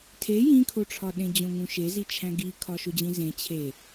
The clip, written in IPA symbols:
tʰe jĩkʰoʈ͡ʂʰɒɗẽ d͡ʑõŋũʃezi t͡ʃʰæ̃ɡikʰɒ ʃod͡ʑĩzẽ t͡ɕʰe

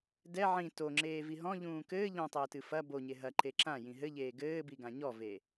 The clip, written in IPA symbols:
dɛ ʕĩ toŋ͡ǁeːvi ɦɔ̃ʎũː kɘː ʎɔ̃tˤɘːtɨ fɐ boɲe ɦɐǃe ǁãjĩ ɦɘʎeː ɡɘːbiɡã ɲɔve

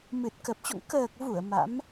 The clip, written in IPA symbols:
mɨ˨˩t̚kə˨˩p̚t͡ɕo̰˧˨ŋ kəː˨˩k̚vu˧˩ə̯ ma̰˧˥m

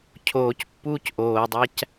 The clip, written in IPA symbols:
cʰoːc pːuːcʔoːdˤæc

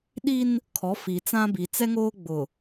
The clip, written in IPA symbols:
ɗi˦n | kʰɔ˨˦fi˨t͡sã˦bi˨ t͡sɛ˦ŋoː˦ɡ͡bʊ˨

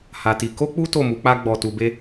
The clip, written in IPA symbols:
ha˧ti˧ ko˦k͡pu˦ to˦˨mu˨˦k͡pa˦ɡ͡bɔ˧ tu˧be˦

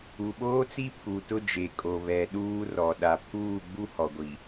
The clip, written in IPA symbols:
u˨ɓoː˦t͡si˦ pʰu˨tʊ˦d͡ʒe˨ kʼo˨βɛ˨ ɗuː˦rɔ˨ ɗa˨ pʰuː˦˨ɡ͡bu˦ hɔ˨ɡʷi˨

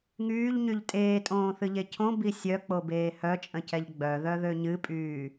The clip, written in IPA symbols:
ŋyːʎɲyʎ tʼeːtʼõːθɨʎe cʰõbi sʲœk͡pobeː hœt͡ʃʼə̃cɛʎ ɡ͡bœðœðø ɲɨpʼyː

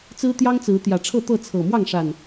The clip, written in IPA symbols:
t͡sɹ̩˦t̪jɑ˦ŋt͡sɹ̩˨˦ t̪jä˨˩ʈ͡ʂʰɤ˥˨t̪ɤ˥˨ t͡sʰɤ˨˩mwɑ˥˨ŋʂa˨˩n

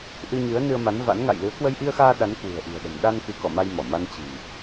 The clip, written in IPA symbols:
ʔɨ˧ɲɨ˨˦ə̯ nɨ˧ə̯ma˨˦nva̰˧˥n ŋa̰˧˨jlɨ˨˦ə̯ kwə˧jʔi˧ə̯xaː˧ ɗa˨˦nkwɨ̤˨˩ə̯ʔi̤˨˩ə̯ɗə̤˨˩m ɗa˧n kɨ˨˦kɔ̰˧˨ma˧jmɔ˧˩ ma˧n t͡ɕi̤˨˩n

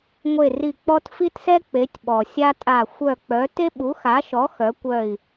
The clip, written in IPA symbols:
ŋʷe˦˨ri˦˨ k͡pɔ˥t fi˥tsɛ˥ k͡pe˨˥tʲɓɔ˨ sʲa˥tʼa˦˨ xʷœ˦˨k͡pœ˨˥ te˥ɓu˨˥xa˨˥ʃɔ˨˥ xœ˨˥kʷœ˦˨i̯

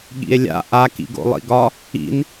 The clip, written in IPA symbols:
ɠḭe̯lʲa̰ ʔa kḭɡo̰lˠḭɡɒ | ḭn

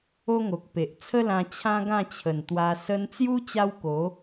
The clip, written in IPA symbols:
o˦ŋo˨k̚pe˨ʔ t͡sʰə˦lã˧ t͡ɕʰã˦ɡã˥˧t͡ɕʰə˨˩n t̪wa˧ sə˧nt͡sju˦ t͡ɕa˦wko˨˦

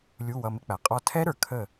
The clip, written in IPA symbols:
lʲu˩˧˩ wʌ˩˧˩mɪ˦˥k͡pæ˩ qʼɔ˧˩tʰɛ˦˥ɾə˞˩ kʰə˥˩

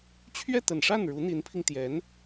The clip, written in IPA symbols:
t͡ɕʰɥɛ˥˩t̪ə˨˩nʂa˥˩n ɻu˧˥n̪i˧˥npʰi˧ŋt̪jɛ˧˥n

